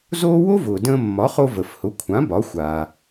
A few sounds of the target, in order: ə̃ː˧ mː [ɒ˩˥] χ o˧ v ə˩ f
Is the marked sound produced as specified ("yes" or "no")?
yes